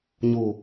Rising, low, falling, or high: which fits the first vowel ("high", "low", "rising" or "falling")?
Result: low